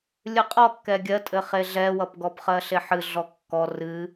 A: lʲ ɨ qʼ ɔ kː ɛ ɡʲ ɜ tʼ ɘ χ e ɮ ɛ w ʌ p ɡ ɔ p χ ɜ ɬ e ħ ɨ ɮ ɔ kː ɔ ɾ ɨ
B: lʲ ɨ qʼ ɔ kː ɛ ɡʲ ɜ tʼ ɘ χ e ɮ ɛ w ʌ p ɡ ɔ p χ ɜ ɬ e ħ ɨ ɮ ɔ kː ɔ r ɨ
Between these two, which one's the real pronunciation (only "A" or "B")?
B